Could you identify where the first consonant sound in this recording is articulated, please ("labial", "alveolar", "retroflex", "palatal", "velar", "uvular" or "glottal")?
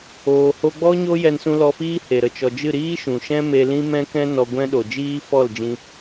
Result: glottal